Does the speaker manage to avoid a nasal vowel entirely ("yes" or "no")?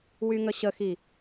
yes